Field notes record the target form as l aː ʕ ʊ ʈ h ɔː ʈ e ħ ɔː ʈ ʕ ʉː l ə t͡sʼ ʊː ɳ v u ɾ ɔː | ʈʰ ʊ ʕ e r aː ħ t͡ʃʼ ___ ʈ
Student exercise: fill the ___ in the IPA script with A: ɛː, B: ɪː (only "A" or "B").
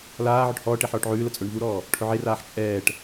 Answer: A